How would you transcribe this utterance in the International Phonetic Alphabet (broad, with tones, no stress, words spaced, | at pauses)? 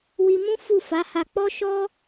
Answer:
wi˧mũ˦ fu˦˨ fa˨˦ ha˧ k͡pɔ˦ʃɔ˦